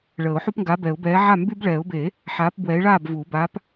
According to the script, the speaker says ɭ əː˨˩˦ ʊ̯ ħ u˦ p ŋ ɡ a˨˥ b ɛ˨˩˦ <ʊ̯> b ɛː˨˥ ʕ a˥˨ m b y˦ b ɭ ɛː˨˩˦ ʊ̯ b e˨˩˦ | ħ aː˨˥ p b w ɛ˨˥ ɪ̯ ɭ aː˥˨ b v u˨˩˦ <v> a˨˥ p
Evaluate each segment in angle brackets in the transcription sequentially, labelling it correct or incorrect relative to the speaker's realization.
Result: correct, incorrect

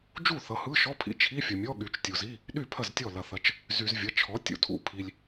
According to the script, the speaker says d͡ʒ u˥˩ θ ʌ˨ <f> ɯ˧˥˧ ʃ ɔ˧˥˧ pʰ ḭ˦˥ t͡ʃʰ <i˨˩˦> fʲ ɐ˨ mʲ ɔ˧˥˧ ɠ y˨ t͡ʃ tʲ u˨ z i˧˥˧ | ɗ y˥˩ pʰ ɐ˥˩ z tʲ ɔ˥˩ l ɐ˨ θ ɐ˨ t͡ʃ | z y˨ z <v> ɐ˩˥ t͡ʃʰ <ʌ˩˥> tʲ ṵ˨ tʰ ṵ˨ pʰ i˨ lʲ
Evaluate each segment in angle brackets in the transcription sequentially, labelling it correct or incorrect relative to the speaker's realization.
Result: incorrect, incorrect, incorrect, incorrect

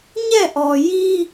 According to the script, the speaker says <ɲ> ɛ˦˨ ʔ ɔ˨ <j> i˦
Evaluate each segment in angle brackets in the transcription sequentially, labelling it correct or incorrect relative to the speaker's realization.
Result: correct, correct

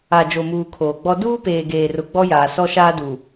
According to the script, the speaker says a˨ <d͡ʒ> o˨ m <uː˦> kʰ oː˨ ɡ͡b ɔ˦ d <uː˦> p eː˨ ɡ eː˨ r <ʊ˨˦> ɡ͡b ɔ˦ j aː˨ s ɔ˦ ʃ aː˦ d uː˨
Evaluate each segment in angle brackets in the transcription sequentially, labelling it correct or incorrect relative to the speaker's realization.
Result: correct, incorrect, correct, incorrect

